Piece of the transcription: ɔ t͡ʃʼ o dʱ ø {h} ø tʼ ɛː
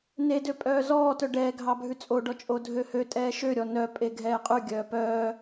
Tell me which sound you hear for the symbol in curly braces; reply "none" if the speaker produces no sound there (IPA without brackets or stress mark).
h